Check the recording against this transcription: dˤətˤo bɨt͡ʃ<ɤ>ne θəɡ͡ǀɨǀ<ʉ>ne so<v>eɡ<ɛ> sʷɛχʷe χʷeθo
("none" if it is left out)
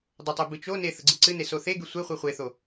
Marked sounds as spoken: o, ɨ, θ, ɨ

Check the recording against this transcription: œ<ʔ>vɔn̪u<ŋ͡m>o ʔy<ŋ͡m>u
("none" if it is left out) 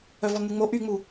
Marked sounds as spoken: none, ŋ͡m, ŋ͡m

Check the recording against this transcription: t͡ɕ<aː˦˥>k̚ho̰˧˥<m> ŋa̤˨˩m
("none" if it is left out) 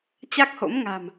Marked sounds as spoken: a˦˥, m

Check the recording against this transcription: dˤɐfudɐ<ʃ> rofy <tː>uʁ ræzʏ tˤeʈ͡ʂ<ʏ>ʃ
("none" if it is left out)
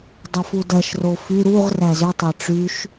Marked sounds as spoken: ʃ, ɾ, y

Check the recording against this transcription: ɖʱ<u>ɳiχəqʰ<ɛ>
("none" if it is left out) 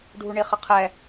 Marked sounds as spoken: u, ɛ

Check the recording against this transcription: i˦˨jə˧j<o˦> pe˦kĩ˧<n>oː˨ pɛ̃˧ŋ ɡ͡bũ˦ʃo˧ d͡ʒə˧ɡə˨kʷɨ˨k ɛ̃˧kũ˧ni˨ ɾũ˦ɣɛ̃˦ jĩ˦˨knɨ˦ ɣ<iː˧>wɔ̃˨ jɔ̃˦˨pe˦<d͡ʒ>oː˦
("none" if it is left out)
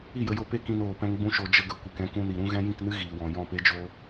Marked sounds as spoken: o˧, n, iː˨, d͡ʒ

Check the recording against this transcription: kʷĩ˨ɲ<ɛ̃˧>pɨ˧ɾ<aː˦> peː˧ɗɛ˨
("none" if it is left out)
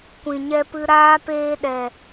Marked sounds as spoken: ɛ˧, aː˦

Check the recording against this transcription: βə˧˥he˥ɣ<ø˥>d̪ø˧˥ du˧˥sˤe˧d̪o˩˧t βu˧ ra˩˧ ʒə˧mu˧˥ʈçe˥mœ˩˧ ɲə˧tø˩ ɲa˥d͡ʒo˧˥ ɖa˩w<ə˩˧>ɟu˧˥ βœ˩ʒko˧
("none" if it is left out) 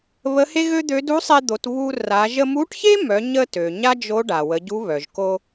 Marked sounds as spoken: ø˥, ə˩˧

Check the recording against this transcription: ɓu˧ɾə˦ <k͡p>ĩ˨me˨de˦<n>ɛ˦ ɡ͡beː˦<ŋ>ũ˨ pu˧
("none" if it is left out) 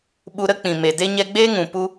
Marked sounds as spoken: k͡p, ɲ, ŋ

